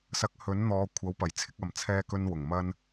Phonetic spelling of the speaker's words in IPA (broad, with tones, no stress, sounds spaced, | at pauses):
s ɐ˨˥ k̚ h ɵ˨˥ n n̪ ɔː˨˧ kʷʰ ɐ˨˥ w p ɐ˨˩ j t͡sʰ ɪ˧ k̚ ɐ˨ m t͡sʰ ɛː˧ k ɵ˧ n w ʊ˨˩ ŋ m ɐ˧ n